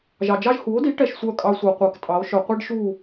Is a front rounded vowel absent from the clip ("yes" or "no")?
no